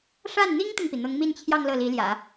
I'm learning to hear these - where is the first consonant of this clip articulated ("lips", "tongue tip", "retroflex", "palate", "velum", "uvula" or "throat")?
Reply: retroflex